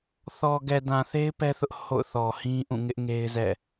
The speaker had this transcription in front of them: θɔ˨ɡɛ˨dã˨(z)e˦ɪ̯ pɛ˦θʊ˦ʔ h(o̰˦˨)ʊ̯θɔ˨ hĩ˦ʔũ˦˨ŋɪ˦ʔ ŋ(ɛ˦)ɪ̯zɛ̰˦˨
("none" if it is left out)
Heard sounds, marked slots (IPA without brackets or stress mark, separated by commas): θ, o̰˦˨, e˦